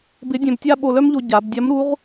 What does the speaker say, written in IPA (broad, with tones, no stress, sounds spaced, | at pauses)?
b ɪ˧˥ dʲ œ̃˧ b tʲ a˥ ɓ o˧ l œ˥ m ʎ o˧ ɟ a˩˧ b dʲ a˧˥ m ɾ u˧˥ ʁ